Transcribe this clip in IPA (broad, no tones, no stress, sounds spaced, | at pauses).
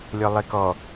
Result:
lʲ ɔ lˠ e k ɔ